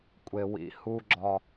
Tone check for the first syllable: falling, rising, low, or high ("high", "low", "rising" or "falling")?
low